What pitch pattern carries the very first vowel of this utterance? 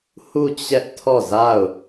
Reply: falling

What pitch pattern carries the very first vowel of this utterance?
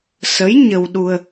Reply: rising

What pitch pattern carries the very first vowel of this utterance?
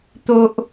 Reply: high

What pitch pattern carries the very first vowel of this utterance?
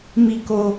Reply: low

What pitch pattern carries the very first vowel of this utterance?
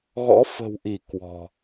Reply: rising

